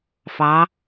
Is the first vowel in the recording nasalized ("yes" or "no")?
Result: no